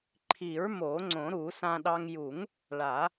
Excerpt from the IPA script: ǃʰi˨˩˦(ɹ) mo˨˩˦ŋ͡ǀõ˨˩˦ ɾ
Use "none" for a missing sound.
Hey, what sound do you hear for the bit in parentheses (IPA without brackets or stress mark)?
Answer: ɹ